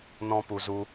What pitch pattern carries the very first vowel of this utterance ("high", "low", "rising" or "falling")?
high